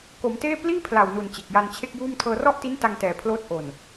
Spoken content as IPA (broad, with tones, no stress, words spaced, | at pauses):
ko˩˦mteː˥˩ pliː˥˩pʰla˨˩wnu˨˩n t͡ɕe˨˩k̚ja˧nt͡ɕʰe˥˩k̚juː˥˩m tʰɤː˧rɔ˥˩ʔti˦˥n ta˧ŋtɛː˨˩ pʰloː˦˥t̚ ʔo˨˩n